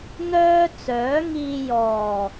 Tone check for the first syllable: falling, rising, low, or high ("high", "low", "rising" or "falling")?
high